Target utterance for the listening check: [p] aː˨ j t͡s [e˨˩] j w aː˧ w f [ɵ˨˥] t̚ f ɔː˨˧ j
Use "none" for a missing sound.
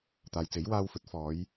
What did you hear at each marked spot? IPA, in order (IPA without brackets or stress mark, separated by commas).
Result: t̪, e˨˥, ɵ˨˥